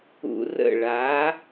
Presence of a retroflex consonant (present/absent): present